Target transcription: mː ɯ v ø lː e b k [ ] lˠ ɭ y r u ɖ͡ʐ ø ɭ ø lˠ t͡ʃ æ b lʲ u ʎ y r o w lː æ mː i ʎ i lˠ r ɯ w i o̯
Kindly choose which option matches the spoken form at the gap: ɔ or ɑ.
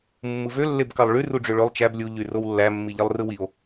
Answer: ɑ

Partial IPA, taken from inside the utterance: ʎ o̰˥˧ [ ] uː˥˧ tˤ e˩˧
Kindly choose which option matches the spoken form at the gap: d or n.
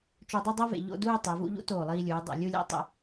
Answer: d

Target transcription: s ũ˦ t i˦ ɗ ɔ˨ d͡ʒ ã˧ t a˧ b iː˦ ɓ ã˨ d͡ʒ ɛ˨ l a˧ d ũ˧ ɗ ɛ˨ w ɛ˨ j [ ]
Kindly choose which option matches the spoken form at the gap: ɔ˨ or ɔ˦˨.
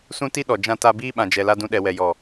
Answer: ɔ˨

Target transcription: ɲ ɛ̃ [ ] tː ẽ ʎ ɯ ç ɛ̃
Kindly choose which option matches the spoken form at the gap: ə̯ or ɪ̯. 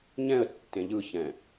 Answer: ə̯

